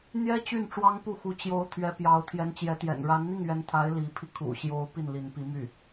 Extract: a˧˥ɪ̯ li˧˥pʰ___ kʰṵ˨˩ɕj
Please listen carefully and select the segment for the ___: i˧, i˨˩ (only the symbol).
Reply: i˧